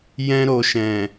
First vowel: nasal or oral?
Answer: nasal